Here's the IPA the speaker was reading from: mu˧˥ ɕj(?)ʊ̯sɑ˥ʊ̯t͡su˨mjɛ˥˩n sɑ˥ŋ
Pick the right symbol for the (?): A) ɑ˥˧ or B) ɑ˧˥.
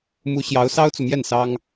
B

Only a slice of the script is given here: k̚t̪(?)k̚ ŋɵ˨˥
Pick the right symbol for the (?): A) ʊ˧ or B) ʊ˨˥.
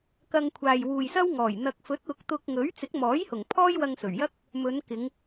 A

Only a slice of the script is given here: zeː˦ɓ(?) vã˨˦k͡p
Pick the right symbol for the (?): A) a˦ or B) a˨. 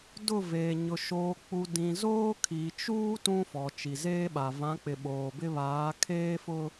B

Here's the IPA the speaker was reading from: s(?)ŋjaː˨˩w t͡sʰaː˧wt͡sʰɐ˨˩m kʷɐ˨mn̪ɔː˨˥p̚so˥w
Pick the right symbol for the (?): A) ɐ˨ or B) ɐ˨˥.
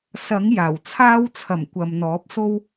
B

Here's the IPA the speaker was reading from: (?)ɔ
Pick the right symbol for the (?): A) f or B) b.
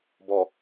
B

